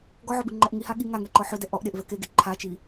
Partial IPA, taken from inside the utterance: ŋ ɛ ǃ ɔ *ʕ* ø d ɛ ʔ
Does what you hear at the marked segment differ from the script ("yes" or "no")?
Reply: yes